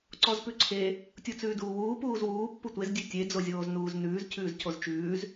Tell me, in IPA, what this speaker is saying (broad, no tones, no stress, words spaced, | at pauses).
ǀɔzpʉǀʰe | tʲut͡sʉːduːwuː puːzwuː pːutʷez dʲʉtʲe d͡zozʲoːznuːznʉːz cʰʉːzcʰozt͡ʃʉːz